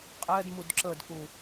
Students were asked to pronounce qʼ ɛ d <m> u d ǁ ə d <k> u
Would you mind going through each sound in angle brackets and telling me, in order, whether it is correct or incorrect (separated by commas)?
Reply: correct, correct